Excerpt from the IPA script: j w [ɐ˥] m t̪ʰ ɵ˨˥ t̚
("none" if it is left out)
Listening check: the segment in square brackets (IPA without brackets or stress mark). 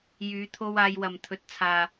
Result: ɐ˨